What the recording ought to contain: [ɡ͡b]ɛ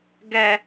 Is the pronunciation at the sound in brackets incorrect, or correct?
incorrect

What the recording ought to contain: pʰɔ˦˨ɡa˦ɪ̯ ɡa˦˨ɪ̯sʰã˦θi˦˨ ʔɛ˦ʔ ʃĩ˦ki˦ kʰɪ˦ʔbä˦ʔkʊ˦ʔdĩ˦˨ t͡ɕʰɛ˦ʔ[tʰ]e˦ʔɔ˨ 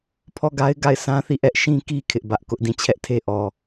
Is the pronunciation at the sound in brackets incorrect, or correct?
correct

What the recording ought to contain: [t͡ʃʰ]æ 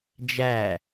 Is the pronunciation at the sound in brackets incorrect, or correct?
incorrect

